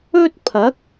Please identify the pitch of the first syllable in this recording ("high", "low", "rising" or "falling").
high